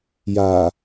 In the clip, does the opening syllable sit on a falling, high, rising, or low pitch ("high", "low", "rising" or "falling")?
low